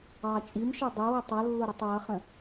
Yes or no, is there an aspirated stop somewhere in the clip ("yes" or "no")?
no